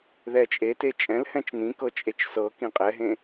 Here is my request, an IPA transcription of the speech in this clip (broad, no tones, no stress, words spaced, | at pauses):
ðɛt͡ʃʼete t͡ʃʼɛ̃lhɛ̃t͡ʃ n̪ĩkɤ t͡ʃʼet͡ʃsɤkĩ qʼɛɦẽ